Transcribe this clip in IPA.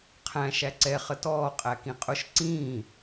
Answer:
qʰ æ̃ ʃ æ ǀ ɛ χ ə t ɔː qʼ æ k ĩ qʼ ʊ ʃ ǀ ĩː

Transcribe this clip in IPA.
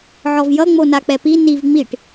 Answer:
ʕ ɔ v j ʌ ŋ͡m o n a k͡p ɛ p i n i v ŋ͡m i ʈ

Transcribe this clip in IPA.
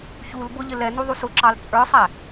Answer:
ç u l b ʊ ʎ ɪ l ɛ n u ðˤ u s ʊ ǁ ɑ l t͡sʼ ə˞ sˤ æ

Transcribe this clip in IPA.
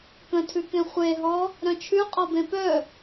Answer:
k ə̃ tʰ ʉ k ẽ χʷ e ɦ ɔ | ɾ œ̃ t͡ʃʰ ʉ qʼ ɔ b ẽ p œ

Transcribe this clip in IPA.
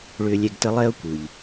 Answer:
ɭ ʏː˦ lʲ ɛ˦ ɡ t ə˥ lˠ ɛ˦ ʊ̯ kʷ ɯ˩ ʎ

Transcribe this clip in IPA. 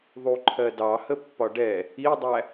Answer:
ðˤ u ǃʰ ɜ d ɑ h ə pː ɒ ɖ ɛ | i dˤ æ

